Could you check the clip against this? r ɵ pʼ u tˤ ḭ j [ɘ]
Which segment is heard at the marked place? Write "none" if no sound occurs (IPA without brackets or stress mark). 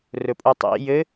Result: ɘ